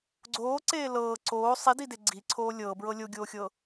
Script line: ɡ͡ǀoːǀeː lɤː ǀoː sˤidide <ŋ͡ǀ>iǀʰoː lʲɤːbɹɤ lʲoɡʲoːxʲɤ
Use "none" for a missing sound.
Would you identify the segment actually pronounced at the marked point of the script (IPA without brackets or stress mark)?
ɡ͡ǀ